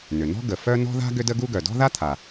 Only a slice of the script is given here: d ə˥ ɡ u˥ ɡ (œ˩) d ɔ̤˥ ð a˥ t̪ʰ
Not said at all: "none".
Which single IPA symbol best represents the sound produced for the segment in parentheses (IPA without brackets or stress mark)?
œ˩